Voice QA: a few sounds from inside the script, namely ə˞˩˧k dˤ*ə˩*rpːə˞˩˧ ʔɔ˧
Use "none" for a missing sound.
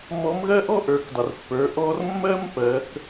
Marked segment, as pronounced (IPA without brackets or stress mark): ə˩